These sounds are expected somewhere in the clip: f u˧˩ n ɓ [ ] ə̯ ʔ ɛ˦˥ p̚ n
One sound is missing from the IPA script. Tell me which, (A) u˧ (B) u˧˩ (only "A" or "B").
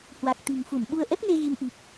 A